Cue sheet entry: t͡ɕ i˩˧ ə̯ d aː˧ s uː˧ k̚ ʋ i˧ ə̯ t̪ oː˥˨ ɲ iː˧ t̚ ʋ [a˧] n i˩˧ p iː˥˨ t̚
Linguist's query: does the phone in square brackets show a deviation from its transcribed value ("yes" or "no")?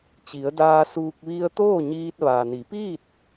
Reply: yes